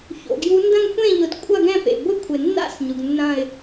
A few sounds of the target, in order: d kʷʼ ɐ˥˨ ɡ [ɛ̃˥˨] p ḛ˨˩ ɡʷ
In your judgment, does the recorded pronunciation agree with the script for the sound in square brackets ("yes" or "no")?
yes